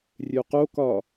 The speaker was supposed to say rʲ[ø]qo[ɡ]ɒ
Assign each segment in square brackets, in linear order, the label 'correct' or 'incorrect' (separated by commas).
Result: correct, incorrect